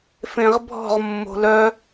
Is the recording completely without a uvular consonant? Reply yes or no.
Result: no